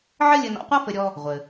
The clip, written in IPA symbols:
ʕɘ˥lʲɘ˧ nɔ̰˧qʷa˥fɘ˧ɾʲɔ˧ | ʁʷɘ˩

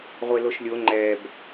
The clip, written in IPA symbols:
ʁʷeloʃlʲo ŋ͡ǃɛb

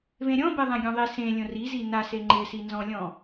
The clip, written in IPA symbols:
vẽɾʲɔ̃beðˤɛ̃ ɡʲõðˤi sẽlʲõ rizi nase ŋ͡ǃɪsi nzɔ̃lʲɔ̃

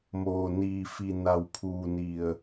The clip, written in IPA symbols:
moː˩niː˩fi˩ na˩wpʰuː˩ni˩ə̯

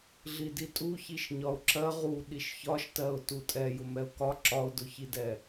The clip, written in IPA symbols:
ɮiditʼuçiʃ ɲɒʊ̯ǁɜ ʁu ɗiʃçɒʃtɜʊ̯ tutʼɛ jʊmɛʊ̯kɒ ǁɒʊ̯dʊçidɛ

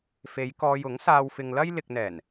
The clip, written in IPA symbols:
fe˨˧jkɔː˧j ʊ˨˥ŋsaː˧wfɪ˧ŋlɐ˥j lɪ˨k̚n̪ɛː˨˩n

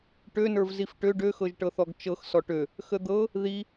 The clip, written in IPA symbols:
ʈønə˞v zifʈø ɖøxɤʒʈɤθɔɡ t͡ʃɤx sɔʈø | xəd̪ɤ | ði

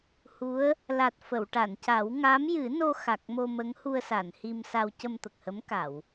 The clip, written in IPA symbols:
hu˧˥ə̯ | la˨˩t̚ fə˨˩˨wʈa˨˩˨nca˨˩˦w ŋa˧˥mjɨ˨˩˦no˧xa˨˩k̚ mo˧mə˧˥ŋhu˧ə̯sa˨˩˨n hi˧msa˧w cə˧mt̪ə˨˩k̚hə˧˥mka˨˩˨w

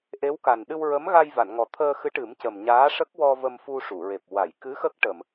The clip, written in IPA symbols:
ʔe˧˥wka˨˩n ɗɨ˧wɹə˧˥mɣa˧j va˨˩˨nŋɔ˨˩t̪ʰəː˧xɨ˧˥ ʈɨ˨˩˦mcə˨˩m ɲaː˧˥ʂə˦˥k̚wɔ˧ və˧mfu˧ʂu˨˩˨ɹe˨˩p̚ wa˨˩˨jkɨ˧˥ xə˦˥k̚ʈə˨˩˨m

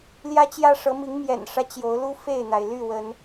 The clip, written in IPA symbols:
ljä˦t͡ɕjä˦ ʂɤ˨˦mi˨˦ŋ mjɛ̰˨˩nʂä˦ t͡ɕjo˨˦ʊ̯lu˦ fe˥˨ɪ̯n̪a˩ɪ̯ly˥˨wə˨˦n

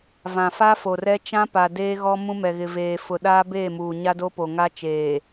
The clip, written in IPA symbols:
vã˨fa˦fo˨rɛ˦ t͡ʃã˦pa˨deː˦ɣɔ˦ mũ˦mɛ˨ɣɪ˨veː˨ fʊ˨ɗaː˦beː˦˨muː˨ ɲa˦do˦po˨ ŋa˦t͡ʃeː˨

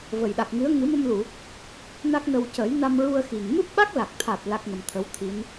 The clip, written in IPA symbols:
və˨˩jɗa˨˩k̚ŋɨ˧˥ə̯ ŋɨ˨˩˦mə˧mlu˨˩˨ | na˦˥k̚nə˧w cə˨˩˦jna˧mɹu˧ə̯ xi˨˩ŋ mɨ˦˥p̚ɓa˦˥k̚la˨˩k̚t̪ʰa˨˩t̚ la˦˥k̚ŋə˧mt̪ʰə˧˥wt̪ʰi˧˥n

